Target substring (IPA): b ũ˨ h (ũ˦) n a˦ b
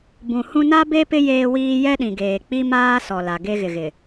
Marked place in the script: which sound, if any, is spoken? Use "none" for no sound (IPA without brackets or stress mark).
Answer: ũ˦